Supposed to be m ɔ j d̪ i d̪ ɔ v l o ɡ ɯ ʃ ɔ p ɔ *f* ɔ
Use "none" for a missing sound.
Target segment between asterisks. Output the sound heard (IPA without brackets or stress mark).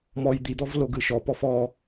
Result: f